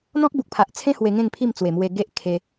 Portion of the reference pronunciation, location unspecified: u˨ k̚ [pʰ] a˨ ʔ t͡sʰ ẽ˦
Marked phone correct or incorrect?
correct